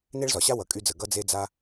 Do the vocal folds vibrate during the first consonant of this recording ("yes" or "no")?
yes